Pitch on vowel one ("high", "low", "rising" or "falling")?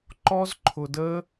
high